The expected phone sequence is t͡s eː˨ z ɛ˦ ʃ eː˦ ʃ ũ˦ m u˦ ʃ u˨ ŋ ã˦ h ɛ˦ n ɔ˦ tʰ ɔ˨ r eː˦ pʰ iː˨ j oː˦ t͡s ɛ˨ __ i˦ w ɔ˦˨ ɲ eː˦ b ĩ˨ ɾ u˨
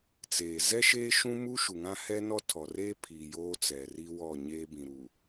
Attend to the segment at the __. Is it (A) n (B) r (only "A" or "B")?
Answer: B